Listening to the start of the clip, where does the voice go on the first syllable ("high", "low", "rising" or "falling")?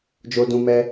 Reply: high